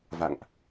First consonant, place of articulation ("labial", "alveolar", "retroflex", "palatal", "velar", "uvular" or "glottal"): labial